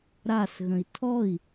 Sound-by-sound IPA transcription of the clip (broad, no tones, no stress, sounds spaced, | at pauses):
ɾ a s ɣ ə̃ i̯ tʰ ɔ i̯